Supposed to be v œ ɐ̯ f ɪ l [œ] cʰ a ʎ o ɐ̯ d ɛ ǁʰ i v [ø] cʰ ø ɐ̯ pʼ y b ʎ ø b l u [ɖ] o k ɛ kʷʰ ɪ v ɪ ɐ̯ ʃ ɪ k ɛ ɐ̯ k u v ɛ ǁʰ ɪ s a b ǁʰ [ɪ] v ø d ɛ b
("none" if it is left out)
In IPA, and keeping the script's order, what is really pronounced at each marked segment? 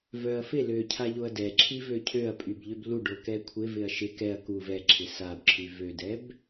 ø, ø, ɖ, y

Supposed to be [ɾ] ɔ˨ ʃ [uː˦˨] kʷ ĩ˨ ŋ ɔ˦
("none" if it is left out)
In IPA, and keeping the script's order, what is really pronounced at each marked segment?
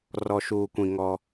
r, uː˨

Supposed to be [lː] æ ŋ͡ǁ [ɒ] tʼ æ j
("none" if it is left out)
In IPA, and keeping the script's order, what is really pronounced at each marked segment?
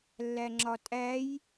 lː, ɒ

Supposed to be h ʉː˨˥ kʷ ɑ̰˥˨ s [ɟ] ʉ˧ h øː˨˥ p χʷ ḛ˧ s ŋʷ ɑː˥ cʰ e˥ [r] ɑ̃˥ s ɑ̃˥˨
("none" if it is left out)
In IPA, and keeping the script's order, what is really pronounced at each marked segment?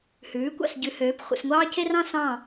ɟ, r

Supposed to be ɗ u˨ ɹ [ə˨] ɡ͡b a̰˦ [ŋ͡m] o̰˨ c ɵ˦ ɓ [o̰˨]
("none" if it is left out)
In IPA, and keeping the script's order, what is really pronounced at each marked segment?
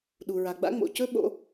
a˨, ŋ͡m, o̰˨˦

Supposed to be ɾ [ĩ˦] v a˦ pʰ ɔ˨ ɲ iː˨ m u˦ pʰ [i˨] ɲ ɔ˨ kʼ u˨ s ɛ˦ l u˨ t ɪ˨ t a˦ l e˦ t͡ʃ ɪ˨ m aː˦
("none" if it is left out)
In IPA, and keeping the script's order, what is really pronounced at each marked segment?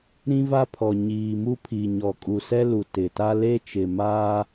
ĩ˦, i˨

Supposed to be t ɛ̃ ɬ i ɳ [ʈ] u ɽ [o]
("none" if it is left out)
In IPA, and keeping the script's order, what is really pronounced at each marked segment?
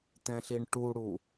ʈ, u

